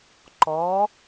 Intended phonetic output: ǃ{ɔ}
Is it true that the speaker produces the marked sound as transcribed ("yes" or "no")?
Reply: yes